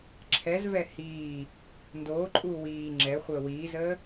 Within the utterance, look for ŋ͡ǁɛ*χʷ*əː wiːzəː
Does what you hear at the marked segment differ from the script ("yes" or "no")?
no